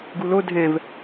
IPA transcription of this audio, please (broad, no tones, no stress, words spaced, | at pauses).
ɡulo dʱɛ̃v